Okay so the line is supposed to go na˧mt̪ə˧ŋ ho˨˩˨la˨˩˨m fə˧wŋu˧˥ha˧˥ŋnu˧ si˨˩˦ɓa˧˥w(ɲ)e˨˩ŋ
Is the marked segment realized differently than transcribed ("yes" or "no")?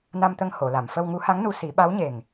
no